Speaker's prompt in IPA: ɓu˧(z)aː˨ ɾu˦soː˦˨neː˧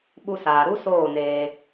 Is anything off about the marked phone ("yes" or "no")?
yes